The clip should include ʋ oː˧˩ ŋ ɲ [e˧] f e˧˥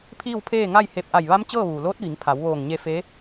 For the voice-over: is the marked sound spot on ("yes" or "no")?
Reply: yes